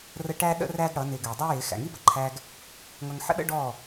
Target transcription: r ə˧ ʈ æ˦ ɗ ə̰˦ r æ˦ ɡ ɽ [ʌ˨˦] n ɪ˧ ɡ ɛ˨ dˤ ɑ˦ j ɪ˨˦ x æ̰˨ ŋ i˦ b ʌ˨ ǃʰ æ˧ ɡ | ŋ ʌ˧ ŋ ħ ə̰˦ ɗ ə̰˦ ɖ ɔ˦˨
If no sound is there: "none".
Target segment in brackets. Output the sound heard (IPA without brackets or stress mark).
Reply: ʌ˨˦